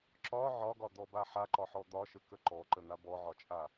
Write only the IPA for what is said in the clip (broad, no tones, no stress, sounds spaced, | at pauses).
ǁ ɒ ʕ ɒ ɡ ɒ d̪ ɔ b a ħ a ǃ ɒ ħ ɔ d̪ ɒ ʃ ə k ə ǃ ɔ ǃ ə n̪ a b ɔ ʕ ɒ t͡ʃʼ a